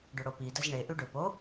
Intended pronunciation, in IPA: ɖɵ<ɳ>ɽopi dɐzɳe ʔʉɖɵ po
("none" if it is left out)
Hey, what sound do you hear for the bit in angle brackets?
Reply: none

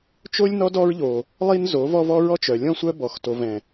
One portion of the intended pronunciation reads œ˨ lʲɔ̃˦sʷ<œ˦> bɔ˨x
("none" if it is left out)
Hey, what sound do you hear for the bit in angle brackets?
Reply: œ˦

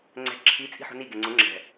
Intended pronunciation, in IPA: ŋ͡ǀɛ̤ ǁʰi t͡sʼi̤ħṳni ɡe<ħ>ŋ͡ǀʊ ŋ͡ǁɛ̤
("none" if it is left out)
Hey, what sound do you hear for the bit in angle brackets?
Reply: none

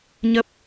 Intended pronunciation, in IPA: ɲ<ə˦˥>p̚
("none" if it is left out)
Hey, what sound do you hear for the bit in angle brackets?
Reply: ə˦˥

